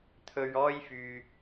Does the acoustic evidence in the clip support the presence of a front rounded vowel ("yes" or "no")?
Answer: yes